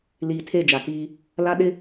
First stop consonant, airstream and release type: aspirated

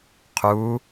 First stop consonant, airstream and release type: aspirated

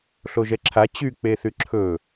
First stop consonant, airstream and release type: click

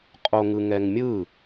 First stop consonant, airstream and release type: ejective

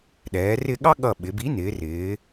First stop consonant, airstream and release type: implosive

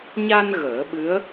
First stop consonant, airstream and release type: implosive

